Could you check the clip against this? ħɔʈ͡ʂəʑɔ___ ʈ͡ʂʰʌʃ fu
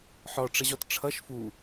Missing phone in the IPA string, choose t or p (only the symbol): t